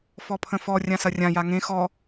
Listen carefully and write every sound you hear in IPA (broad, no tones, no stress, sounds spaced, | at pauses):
f ɔ pʰ ə̃ f ɔ rʲ ã s ɐ rʲ ã j a ŋ ẽ x ɔ